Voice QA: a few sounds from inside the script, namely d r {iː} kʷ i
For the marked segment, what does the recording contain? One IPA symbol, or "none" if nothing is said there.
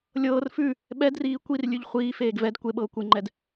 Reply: iː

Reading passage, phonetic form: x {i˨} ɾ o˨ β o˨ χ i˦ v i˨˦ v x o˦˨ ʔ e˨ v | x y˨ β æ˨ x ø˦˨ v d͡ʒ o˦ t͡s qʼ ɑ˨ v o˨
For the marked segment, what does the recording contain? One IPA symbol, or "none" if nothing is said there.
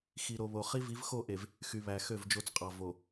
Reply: i˨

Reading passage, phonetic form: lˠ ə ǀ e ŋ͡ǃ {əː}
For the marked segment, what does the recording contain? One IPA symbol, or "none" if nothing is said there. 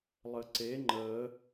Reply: əː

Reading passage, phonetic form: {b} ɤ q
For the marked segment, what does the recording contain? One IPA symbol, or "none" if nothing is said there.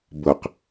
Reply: b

